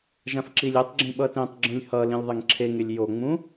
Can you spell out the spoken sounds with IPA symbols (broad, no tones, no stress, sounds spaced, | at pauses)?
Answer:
ʒ ã f ǁ i lʲ e tˤ ɡ͡ǁ ĩ ɓ ʌ t ẽ tˤ ɡ͡ǁ ũ lʲ h ʌ l ĩ lʲ ðˤ e ŋ ǁʰ e ŋ e lʲ j o ŋ͡m ũ